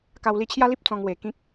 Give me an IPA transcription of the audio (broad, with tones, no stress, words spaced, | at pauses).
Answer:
ka˧wli˧t͡ɕʰja˦li˦p̚ t͡sɔ̃˧ŋwe˨˩ kĩ˦k̚